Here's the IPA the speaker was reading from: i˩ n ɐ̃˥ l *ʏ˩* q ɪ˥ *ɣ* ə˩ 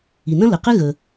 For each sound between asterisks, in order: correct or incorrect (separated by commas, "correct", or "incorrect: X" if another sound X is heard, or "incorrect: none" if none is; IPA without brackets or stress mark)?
incorrect: ə˩, correct